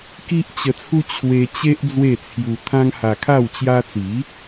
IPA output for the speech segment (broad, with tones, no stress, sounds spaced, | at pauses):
k i˦ ʔ t͡ɕ ə˧ t͡sʰ u˦ t͡ɕʰ w e˧ t͡ɕ e˦ ʔ d͡z w e˥˧ t͡sʰ j u˧ t̪ʰ ã˦ ŋ h a˧ kʰ a˥˧ w t͡ɕ j a˧ t͡s i˨˦